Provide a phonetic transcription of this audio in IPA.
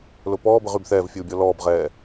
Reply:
l ʊ p ɔː b ə ʁ y b θ ɛː v fʲ uː bʲ ɔ l ɔː b ʁ ɛː

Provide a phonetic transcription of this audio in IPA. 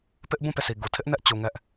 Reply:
p ɪ˦ ʔ b ũ˦˨ p e˦˨ s i˨ ɡ u˨ tʰ ɪ˦ ʔ n ɛ˦ ʔ t͡ɕ u˨ ŋ ɛ˦ ʔ

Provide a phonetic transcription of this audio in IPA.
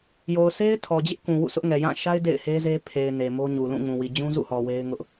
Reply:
j o˨ ʊ̯ s e˦ ɪ̯ tʰ ɔ˨ d͡ʑ ɪ˦ ʔ k ũ˨ w ṵ˦˨ sʰ ʊ˦ ʔ ŋ ɛ˨ j ã˦˨ ʃ a˦ ɪ̯ d ḛ˦˨ ɪ̯ h e˦ z e˦ pʰ e˨ ɪ̯ n e˨ m o˦ ɲ u˨ l ũ˦˨ ŋ ũ˨ w i˨ d͡ʑ ũ˦ z ṵ˦˨ h ɔ˨ w e˦ ɪ̯ ŋ ʊ˦ ʔ

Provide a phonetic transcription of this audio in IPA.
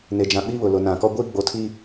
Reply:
n e˨ d͡ʒ ã˨ ɓ i˦ β ʊ˨ l ʊ˨ n ã˨ k ɔ˦ ɡʷ iː˦ ɡ͡b o˨ tʰ i˦

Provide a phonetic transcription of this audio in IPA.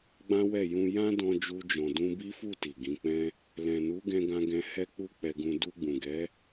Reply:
ɡ͡b ã˦ w ɛ˦˨ j ũ˧ j ã˦ d ɔ̃˧ d͡ʒ u˧ d͡ʒ ɔ̃˨ d ũ˧ b i˦ f u˦˨ t i˨ ɡ ĩ˨˦ k͡p ɛ̃˦ | l ɛ̃˨ n u˨˦ ɡ ɛ̃˧ ɡ ã˧ ɡ ɛ̃˧ h ɛ˦ k͡p u˦ k͡p ɛ˧ ɡ ũ˧ d u˧ ɡ͡b ũ˨ ɡ ɛ˨˦

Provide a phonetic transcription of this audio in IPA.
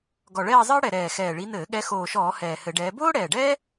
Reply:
ɡ ɔ˨˩ ɭ ɛː˥˧ zˤ ɘː˥ ɽ ɛ˨˩ ɾ ɛː˨˩ x ɛː˨˩ ɭ i˨˦ n ɘː˧˩˧ ɠ ɛ˨˦ x oː˨˩ ʃ ɔː˧˩˧ h ɛː˨˩ h ɘ˧˩˧ ɖ ɛː˨˦ b oː˥ ɽ ɛː˨˩ ɖ ɛː˥

